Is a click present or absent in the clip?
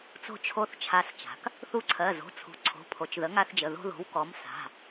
present